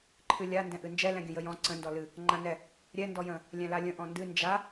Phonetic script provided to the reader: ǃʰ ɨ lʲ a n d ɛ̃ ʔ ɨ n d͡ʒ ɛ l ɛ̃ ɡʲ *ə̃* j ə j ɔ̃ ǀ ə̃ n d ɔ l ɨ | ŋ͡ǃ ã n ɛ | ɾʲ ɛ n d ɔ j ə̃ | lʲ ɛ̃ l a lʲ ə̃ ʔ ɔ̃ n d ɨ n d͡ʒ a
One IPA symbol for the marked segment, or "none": ə̃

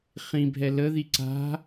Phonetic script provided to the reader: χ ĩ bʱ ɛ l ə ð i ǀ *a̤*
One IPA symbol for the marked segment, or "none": a̤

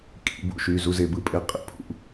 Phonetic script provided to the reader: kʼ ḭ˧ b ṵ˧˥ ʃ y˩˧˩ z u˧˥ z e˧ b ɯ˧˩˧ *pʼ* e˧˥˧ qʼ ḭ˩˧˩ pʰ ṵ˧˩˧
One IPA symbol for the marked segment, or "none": pʼ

